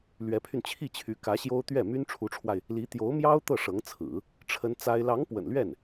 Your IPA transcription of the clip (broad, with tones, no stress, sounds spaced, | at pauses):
l ɥ ɛ˧˥ pʰ y˧ n t͡ɕʰ i˥˩ t͡ɕʰ y˧˥ k ä˧˥ ɕ j o˥ ʊ̯ t̪ ɥ ɛ˥˩ m y˥ n ʈ͡ʂʰ u˧˥ ʈ͡ʂʰ w a˧ ɪ̯ | l i˧˥ t̪ j o˧˥ ʊ̯ m j ɑ˥ ʊ̯ t̪ ɤ˥˩ ʂ ɤ˧˥ ŋ t͡sʰ ɹ̩˨˩˦ | ʈ͡ʂʰ ə˥ n t͡s a˥ ɪ̯ l ɑ˧˥ ŋ p w ə̰˨˩ n l ɥ ɛ˥˩ n